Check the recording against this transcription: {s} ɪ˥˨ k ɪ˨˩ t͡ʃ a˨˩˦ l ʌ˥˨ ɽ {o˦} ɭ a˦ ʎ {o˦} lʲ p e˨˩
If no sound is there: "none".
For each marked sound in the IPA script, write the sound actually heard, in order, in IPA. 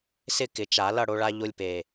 s, o˦, o˦

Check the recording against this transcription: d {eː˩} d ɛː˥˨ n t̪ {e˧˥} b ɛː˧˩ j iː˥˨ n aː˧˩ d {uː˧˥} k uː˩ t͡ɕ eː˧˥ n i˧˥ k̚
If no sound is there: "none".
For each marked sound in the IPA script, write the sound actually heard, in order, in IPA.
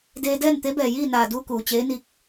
eː˧, e˧˥, uː˧

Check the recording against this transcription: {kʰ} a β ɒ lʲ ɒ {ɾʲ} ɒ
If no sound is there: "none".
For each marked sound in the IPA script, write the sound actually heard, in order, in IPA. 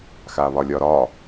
x, ɾ

